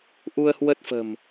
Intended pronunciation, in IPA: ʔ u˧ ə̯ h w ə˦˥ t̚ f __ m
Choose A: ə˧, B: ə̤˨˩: B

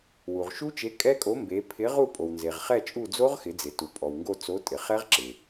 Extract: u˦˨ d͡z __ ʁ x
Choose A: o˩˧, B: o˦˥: B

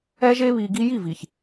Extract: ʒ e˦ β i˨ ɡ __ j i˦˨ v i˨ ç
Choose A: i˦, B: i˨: A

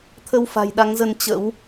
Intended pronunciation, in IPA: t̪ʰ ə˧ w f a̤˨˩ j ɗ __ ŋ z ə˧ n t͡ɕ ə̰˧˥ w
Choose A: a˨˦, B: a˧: A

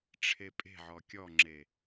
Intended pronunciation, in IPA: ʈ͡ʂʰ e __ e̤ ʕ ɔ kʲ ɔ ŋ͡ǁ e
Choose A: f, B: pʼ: B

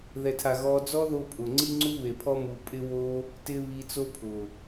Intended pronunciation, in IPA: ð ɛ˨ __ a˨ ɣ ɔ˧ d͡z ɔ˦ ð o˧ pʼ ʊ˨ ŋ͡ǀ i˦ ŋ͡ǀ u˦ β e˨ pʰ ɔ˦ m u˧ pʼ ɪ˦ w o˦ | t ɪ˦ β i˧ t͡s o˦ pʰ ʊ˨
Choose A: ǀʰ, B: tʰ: B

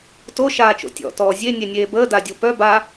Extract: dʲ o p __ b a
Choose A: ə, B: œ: B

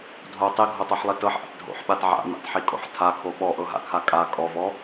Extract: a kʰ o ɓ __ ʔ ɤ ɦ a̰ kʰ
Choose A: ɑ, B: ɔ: B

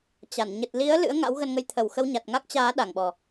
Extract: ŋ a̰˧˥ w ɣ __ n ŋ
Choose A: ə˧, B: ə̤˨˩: A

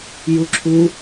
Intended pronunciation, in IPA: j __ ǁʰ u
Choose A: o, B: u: B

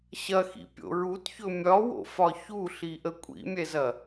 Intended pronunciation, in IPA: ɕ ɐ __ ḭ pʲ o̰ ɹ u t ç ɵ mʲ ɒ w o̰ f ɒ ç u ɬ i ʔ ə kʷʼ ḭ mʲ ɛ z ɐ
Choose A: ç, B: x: B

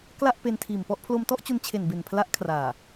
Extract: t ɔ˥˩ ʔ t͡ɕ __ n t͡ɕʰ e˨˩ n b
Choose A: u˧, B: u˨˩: A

